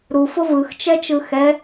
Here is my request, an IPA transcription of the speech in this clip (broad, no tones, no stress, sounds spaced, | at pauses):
ɾ u f o v ɯ x t͡ʃ ɛ t͡ʃ ɯ x ɛ